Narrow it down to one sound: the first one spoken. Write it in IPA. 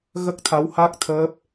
ɣ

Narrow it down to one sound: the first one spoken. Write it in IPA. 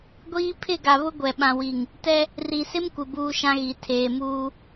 ɡʷ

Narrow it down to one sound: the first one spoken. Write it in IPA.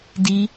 d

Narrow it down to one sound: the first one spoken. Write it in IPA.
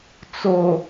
t͡s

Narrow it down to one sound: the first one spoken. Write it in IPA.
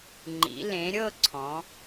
ŋ͡ǃ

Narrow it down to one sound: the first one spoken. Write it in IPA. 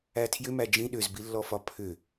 æ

